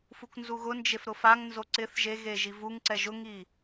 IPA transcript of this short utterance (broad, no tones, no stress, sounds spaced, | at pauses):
f u k n z u ɣ ʊ n d͡ʒ e f ɾ ʊ f a ŋ n z o ǀ ɪ θ ʒ e ɣ e ʒ i v u ŋ ǀ ɛ ʒ ʊ ŋ i